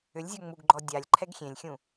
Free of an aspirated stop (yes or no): no